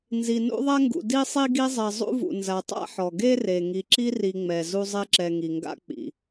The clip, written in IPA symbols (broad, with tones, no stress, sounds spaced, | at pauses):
n z i˨ n ṵ˥ ðˤ ɛ˥ ŋ ɡ ṵ˨ d i˥ sˤ i˥ ɡ i˦ zˤ ɛ˨ zˤ ṵ˥ v ṵ˨ n z a˨ tˤ a̰˥ ħ ɔ˩ ɡ e˥ r e˩ ŋ i˨ ǁ i˦ r i˨ ŋ͡m ɛ˩ z u˦ zˤ e˦ ǁ ɛ˨ ŋ i˩ ŋ ɡ a̰˦ k͡p ḭ˩